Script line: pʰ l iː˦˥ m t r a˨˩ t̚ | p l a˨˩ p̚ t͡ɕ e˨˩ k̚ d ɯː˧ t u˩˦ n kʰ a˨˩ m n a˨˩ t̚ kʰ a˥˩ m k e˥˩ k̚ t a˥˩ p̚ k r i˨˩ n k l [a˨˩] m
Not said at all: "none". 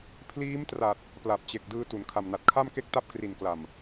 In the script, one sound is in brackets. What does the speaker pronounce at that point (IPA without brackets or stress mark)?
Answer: a˨˩